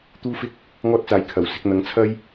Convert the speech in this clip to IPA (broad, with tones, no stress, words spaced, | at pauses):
t̪uː˥fɪ˥k̚ | ŋɔː˥t̚t͡saː˨˩j kʰɐ˨˩w sɪ˧k̚n̪ɐ˨˧ŋt͡sʰɐ˥j